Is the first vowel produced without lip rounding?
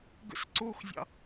yes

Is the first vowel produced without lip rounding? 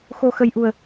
no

